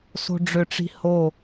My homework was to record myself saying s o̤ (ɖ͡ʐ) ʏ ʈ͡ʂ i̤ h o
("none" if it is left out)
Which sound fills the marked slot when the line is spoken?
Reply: ɖ͡ʐ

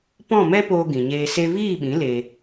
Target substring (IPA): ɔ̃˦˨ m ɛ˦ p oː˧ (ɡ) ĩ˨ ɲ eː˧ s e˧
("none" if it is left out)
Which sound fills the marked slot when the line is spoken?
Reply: ɡ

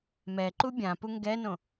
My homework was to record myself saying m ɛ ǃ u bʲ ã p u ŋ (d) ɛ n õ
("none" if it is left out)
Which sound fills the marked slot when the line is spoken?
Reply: ɡ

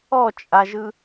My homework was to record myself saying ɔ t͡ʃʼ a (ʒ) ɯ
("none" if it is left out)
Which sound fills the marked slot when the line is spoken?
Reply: ʒ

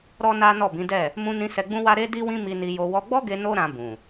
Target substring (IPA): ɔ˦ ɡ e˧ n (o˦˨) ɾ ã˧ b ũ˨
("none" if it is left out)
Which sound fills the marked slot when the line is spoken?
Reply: o˦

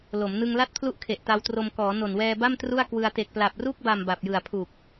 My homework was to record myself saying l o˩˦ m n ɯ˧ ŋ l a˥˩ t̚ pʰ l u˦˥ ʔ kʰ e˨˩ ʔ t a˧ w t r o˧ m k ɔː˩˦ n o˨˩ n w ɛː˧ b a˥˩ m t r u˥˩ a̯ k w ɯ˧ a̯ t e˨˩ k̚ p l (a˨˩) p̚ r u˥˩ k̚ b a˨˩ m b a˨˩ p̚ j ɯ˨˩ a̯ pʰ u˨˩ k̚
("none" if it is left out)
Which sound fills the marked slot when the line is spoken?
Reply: a˨˩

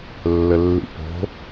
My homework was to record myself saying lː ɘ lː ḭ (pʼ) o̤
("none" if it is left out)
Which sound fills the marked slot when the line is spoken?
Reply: p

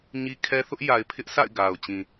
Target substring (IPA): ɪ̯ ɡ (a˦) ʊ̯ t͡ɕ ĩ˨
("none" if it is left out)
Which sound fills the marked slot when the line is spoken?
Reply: a˨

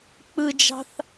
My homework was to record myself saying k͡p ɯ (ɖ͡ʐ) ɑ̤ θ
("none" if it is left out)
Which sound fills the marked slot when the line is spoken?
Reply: d͡ʒ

